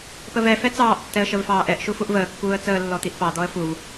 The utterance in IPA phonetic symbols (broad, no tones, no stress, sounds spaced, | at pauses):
p ə v ɛ f ɛ t͡s ɑː ʔ tː ɛ ə̯ ʃ ə v f ɑː ʔ ɛ ʔ ʃ u f u ʔ v əː kː uː ə̯ t͡s əː lː ɔ t̪ i ʔ p ɑ d̪ ɔ ə̯ f u v